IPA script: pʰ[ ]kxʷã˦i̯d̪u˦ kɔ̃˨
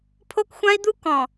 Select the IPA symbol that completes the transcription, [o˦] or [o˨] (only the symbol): o˦